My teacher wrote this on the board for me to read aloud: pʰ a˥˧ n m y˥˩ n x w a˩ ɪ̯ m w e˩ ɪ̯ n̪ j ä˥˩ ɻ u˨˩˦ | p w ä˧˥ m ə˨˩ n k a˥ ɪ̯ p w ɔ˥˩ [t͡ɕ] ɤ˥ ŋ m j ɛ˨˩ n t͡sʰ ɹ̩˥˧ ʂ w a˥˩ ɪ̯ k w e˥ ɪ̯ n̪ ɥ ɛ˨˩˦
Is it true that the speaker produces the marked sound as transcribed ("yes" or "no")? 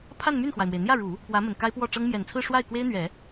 no